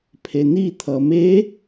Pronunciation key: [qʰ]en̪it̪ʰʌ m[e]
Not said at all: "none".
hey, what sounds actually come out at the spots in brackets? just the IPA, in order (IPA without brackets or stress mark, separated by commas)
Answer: pʰ, e